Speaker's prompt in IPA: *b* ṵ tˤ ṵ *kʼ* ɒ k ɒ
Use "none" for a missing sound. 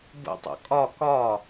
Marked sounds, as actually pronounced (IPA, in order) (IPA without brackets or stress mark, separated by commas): b, kʼ